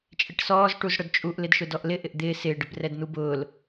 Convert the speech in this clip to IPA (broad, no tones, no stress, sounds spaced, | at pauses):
t͡ʃʼ ɪ ʈ s ɔː z ʈ u z ɽ ʊ d t͡ʃʼ u ʔ l ɪ d ʃ ʊ d ɔ ʔ l ɪ ʔ ɪ ʔ d̪ ɪː s ɪː ɖ ɪ b r ɛ d n̪ u b ʊː l